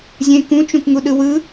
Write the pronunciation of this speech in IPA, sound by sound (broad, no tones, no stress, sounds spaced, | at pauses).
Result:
zʲ ẽ k ũ t͡ʃ ũ k ŋ u ɗ ɯ w ɯ